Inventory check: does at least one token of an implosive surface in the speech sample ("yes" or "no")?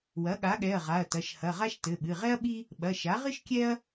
yes